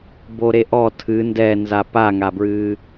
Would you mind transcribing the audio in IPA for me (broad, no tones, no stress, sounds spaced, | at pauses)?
b o ɾ e ʔ ɔ tʰ ɨ n d ɛ n z a p a ŋ a b ɹ ɨː